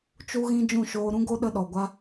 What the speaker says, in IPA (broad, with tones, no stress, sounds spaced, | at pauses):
t͡ʃ u˦ ɣ ĩ˦ d͡ʒ ũ˦˨ ʃ oː˧ ɾ ũ˦ ɡ o˦ ɗ ə˦ ɗ ɔ˨ ɡʷ a˦